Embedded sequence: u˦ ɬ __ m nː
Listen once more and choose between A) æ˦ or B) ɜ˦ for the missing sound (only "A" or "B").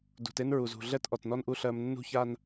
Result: B